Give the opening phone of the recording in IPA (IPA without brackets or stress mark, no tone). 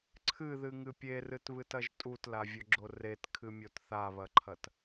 ǀʰ